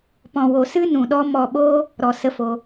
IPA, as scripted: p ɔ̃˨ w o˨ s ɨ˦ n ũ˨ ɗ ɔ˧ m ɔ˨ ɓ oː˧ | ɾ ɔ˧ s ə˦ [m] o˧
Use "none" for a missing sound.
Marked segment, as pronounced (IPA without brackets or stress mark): f